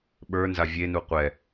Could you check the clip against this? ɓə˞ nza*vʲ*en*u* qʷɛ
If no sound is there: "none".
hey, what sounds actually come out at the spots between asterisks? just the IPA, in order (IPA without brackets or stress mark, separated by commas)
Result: vʲ, u